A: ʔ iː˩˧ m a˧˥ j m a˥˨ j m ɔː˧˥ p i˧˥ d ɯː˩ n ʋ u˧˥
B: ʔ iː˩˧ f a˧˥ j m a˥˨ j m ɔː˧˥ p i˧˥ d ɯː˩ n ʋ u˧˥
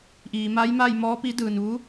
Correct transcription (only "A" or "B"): A